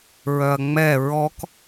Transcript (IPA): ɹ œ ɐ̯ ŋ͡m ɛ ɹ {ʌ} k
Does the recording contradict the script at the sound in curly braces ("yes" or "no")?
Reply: yes